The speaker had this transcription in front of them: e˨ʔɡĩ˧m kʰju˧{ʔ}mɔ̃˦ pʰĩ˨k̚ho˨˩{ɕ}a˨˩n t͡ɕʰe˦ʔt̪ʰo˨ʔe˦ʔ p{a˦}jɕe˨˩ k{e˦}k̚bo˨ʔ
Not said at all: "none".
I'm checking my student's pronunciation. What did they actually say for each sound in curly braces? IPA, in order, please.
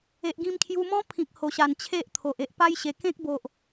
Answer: none, ɕ, a˦, ẽ˦

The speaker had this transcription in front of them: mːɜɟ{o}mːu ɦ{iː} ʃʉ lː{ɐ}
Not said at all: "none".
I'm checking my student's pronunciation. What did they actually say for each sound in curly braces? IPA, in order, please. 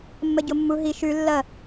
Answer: o, i, ɐ

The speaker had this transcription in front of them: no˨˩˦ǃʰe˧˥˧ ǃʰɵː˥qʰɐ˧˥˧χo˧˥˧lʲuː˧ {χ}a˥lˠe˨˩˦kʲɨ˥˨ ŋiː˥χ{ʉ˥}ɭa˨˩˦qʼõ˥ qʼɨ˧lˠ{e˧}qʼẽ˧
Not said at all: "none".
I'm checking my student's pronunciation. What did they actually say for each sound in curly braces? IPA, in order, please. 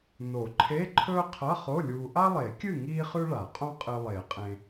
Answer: ʔ, ʉ˥, e˨˩˦

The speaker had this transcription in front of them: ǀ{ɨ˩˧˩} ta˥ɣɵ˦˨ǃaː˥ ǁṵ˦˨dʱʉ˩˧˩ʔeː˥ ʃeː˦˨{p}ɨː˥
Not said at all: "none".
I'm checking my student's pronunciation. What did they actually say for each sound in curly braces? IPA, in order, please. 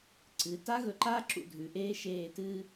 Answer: ɨ˩˧˩, t

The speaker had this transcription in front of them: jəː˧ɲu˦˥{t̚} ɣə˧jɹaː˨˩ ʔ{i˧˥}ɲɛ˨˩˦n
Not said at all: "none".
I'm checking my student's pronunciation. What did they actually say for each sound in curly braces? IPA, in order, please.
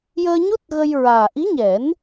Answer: t̚, i˧˥

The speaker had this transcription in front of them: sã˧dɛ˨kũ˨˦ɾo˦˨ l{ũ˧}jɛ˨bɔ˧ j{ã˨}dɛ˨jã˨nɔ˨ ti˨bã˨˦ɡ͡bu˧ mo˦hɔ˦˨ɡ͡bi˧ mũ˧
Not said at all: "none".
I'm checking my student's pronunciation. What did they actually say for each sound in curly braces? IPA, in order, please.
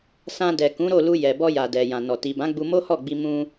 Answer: u˧, a˨

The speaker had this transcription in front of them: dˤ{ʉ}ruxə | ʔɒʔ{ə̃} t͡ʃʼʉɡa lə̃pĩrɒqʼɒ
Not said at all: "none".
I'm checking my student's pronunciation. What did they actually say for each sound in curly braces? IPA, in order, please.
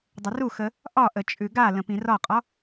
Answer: ə, ə

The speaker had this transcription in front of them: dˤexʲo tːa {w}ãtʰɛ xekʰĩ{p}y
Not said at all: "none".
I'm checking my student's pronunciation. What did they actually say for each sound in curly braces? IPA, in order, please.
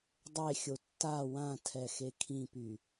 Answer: w, p

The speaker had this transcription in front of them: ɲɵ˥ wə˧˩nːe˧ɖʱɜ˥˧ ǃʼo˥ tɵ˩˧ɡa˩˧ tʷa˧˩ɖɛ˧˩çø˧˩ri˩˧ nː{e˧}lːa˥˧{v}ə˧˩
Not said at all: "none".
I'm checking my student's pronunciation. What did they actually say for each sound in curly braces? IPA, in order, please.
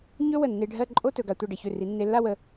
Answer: e˧, w

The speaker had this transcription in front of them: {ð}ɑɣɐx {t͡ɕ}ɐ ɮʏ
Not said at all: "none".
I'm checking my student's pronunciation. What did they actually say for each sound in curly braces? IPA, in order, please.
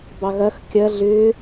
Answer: b, kʲ

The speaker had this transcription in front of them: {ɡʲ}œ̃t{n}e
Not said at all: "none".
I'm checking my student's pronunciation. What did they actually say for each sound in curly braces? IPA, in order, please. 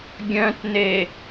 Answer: ɡʲ, n

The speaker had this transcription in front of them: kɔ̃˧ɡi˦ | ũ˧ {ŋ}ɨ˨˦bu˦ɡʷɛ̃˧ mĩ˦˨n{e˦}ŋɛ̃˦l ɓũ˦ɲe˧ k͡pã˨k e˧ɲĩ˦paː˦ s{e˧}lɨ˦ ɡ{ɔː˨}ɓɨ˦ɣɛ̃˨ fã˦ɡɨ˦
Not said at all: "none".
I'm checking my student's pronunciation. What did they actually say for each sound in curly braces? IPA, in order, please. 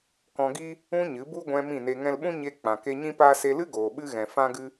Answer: ɲ, e˧, e˧, oː˨

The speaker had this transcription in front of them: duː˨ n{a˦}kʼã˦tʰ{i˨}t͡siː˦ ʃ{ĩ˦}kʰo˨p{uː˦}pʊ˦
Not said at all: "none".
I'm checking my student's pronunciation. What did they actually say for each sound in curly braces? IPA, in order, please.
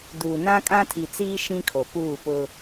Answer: ã˦, i˨, ĩ˦, uː˦˨

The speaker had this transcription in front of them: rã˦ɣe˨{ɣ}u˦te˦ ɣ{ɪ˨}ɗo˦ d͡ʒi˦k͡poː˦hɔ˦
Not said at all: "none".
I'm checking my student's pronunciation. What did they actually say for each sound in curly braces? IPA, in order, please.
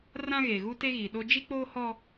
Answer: ɣ, i˨

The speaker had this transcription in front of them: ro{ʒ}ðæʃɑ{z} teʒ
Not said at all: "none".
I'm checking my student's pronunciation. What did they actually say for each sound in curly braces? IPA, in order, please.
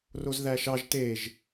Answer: z, ʒ

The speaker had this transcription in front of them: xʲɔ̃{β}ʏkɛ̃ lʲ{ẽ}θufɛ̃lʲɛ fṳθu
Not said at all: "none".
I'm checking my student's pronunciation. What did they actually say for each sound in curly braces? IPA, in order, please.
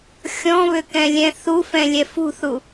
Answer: β, ɛ̃

